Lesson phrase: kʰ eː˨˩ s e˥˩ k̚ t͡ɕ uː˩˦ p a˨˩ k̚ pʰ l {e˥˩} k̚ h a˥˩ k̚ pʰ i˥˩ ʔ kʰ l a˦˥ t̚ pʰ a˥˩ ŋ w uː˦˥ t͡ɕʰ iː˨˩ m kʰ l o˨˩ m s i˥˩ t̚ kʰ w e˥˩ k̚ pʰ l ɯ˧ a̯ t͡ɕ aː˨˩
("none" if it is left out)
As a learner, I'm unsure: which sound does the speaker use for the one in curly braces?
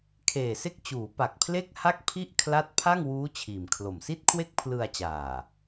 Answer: e˥˩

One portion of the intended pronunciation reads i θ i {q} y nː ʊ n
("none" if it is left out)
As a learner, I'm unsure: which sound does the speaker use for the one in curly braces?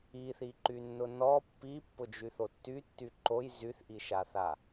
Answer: ǃ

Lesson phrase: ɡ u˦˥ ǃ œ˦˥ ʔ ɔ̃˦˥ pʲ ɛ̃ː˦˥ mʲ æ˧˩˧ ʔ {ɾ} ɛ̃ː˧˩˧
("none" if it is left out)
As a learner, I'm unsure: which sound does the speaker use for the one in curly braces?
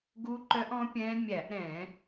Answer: ɾ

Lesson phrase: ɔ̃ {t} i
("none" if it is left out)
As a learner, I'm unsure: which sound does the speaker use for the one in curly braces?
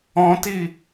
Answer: t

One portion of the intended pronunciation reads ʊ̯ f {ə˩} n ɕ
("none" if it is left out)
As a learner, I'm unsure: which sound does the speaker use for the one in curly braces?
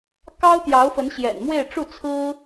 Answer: ə˧˥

